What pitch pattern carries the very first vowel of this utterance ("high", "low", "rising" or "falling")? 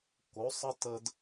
rising